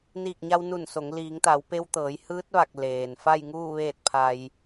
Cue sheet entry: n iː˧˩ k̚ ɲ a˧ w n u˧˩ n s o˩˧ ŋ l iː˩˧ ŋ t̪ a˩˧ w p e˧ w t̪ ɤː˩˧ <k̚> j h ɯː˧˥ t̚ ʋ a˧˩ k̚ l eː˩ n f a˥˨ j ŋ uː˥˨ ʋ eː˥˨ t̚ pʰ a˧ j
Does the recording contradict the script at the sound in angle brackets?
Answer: yes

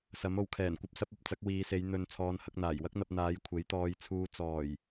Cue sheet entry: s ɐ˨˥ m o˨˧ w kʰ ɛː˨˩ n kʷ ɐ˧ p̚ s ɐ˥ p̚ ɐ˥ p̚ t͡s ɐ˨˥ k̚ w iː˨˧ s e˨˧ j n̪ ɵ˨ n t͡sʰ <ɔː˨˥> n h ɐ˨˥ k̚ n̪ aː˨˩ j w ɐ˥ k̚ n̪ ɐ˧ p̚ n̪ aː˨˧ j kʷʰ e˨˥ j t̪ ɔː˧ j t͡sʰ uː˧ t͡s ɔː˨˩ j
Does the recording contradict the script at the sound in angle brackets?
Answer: yes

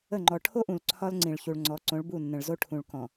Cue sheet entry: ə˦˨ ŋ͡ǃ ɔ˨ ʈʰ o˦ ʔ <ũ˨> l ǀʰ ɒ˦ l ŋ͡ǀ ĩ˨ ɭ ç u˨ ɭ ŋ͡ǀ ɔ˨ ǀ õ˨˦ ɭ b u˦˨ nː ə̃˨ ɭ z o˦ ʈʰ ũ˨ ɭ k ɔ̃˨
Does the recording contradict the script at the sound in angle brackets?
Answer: no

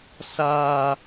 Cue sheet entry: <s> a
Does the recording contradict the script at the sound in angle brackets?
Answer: no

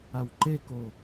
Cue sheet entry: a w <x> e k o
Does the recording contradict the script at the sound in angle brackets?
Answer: yes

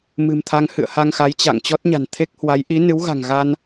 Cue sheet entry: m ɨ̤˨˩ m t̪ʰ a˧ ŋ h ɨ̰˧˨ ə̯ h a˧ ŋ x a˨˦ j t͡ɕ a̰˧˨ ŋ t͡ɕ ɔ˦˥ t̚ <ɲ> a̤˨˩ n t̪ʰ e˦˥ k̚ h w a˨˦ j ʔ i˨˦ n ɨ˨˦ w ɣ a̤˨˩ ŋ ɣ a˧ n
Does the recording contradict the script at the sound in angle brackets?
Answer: no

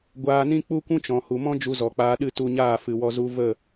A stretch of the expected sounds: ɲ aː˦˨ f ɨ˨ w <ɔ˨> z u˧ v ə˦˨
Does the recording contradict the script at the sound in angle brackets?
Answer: yes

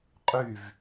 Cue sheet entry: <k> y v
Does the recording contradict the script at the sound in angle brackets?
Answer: yes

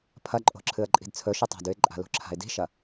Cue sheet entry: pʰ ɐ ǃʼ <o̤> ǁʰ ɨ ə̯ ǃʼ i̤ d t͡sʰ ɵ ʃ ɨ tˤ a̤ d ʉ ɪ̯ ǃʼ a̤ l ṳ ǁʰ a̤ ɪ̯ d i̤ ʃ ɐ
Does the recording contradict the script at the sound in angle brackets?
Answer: no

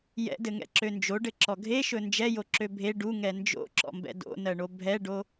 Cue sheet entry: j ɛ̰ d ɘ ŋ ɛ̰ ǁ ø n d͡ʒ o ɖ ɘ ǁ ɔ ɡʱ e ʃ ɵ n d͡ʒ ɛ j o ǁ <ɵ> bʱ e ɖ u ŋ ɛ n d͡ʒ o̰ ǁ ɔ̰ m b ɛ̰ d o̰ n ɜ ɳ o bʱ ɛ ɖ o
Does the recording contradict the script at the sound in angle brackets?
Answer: yes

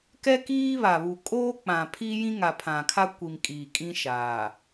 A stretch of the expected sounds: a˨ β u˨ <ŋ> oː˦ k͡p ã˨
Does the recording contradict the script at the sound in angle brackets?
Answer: yes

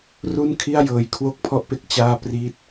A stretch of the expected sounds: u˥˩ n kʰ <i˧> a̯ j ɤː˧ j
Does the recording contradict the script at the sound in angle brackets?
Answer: yes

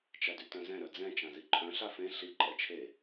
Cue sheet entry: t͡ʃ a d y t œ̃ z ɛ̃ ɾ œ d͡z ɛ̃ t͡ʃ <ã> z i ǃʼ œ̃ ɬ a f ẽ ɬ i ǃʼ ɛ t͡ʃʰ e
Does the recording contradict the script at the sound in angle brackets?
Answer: no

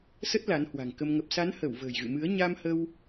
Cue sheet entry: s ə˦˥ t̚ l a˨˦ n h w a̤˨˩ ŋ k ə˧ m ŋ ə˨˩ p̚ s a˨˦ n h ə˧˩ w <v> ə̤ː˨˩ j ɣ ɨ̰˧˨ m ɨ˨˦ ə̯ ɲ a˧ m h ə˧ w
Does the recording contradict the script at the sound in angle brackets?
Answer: no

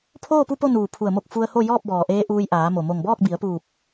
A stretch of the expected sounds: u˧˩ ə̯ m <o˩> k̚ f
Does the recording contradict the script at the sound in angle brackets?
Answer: yes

